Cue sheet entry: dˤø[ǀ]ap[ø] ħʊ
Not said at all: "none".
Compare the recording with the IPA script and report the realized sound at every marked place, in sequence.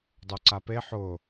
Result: ǀ, e

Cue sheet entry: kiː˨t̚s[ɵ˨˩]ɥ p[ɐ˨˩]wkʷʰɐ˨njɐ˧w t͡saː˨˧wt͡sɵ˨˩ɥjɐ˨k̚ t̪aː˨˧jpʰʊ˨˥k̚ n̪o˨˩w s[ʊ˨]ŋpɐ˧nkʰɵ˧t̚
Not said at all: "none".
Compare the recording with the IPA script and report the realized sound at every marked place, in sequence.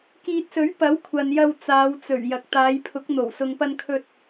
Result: ɵ˨˥, ɐ˨˥, ʊ˨

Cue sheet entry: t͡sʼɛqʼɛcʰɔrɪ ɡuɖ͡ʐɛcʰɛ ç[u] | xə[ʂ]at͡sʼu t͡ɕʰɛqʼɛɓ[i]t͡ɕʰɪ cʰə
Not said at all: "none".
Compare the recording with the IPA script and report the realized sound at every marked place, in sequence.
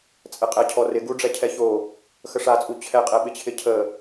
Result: o, ʂ, ɪ

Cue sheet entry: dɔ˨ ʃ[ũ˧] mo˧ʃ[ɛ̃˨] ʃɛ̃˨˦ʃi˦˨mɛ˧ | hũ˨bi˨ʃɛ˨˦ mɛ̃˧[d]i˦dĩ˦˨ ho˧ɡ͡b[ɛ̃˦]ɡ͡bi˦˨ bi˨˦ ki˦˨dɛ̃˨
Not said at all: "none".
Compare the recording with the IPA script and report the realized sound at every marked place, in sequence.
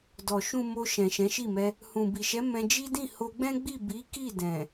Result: ũ˨, ɛ̃˨, d͡ʒ, ɛ̃˦

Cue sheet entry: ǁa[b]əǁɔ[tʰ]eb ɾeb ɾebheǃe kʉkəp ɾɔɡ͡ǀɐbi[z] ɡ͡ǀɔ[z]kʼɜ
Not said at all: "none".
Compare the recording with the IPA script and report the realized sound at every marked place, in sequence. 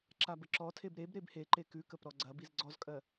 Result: b, tʰ, z, z

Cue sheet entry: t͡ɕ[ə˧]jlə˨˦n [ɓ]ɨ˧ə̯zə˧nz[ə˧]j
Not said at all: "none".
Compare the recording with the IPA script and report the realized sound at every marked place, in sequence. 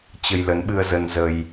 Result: ə˧, ɓ, ə˧

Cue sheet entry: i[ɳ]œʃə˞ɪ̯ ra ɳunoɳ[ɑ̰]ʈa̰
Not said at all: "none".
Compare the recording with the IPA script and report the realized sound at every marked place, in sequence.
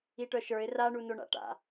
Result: ʈ, a̰

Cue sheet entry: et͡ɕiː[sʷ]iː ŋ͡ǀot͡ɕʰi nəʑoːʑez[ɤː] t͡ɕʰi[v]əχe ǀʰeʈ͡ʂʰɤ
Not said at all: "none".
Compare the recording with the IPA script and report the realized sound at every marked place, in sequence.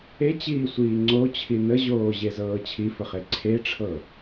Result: sʷ, ɤː, f

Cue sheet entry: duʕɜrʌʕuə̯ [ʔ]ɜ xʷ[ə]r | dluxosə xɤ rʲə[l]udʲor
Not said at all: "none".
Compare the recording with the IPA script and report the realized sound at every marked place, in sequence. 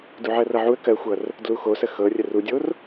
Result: k, ʌ, r

